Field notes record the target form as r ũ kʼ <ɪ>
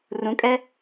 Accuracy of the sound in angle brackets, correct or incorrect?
incorrect